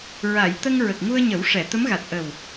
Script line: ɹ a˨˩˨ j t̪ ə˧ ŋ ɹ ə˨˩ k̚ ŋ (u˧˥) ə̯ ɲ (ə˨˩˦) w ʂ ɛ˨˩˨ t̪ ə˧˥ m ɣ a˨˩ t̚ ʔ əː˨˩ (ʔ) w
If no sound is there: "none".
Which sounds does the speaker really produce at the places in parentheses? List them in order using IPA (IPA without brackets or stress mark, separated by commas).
u˧, ə˨˩˦, none